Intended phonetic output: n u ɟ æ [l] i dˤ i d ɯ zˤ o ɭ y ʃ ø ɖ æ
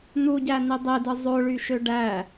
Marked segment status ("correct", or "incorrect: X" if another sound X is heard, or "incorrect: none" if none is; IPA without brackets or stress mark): incorrect: n